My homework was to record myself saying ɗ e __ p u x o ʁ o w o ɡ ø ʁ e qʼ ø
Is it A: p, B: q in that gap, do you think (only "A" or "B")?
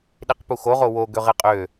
B